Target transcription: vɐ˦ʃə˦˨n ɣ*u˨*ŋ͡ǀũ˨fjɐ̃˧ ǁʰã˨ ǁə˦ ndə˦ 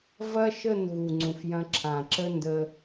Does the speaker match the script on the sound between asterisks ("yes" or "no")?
yes